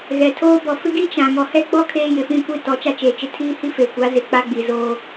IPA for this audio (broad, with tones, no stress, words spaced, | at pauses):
ɣɛ˨tʰoː˦ bɔ˨fɪ˦ɡi˦ t͡ʃã˨ ŋɔ˨hɛ˦ɡ͡bɔ˦ kʰeː˦jɪ˨ fĩ˦˨kʷi˦˨ tɔ˨˦t͡ʃa˦t͡ʃeː˨t͡ʃɪ˦ tʰiː˦hi˦ fe˨kʷa˨˦ zɪ˨k͡pa˦ɡ͡bi˨ zoː˦